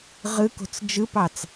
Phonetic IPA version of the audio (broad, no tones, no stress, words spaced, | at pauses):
ʁɯko̤t͡s d͡ʒɯpɑt͡s